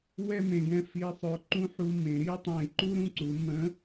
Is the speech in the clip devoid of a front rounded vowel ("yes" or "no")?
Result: no